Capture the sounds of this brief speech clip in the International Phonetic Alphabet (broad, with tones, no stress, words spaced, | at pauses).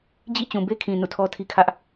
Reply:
d͡ʑḭ˦˨t͡ɕũ˨be˦kʰĩ˨ nṵ˦˨tʰɔ˦tʰi˦kʰä˦ʔ